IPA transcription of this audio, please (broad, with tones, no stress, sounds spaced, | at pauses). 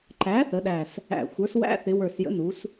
ǃ æ˩˥ θ ə˩˧ ɗ æ˨˩ s | æ̰˨˩ xʷ ə˞˩˥ s w æ̰˧˥˧ θ ɪ˩˧ w ə˞˨˩ s j ə̰˩˥ n u˩˧ s